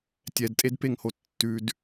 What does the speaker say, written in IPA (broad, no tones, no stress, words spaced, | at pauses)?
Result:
tʲɛdtʼedpeŋho tːʉd